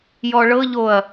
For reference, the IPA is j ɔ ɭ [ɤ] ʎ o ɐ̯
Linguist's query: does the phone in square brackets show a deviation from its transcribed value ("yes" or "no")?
no